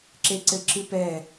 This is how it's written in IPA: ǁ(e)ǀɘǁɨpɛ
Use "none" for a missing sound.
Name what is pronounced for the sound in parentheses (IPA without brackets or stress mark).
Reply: e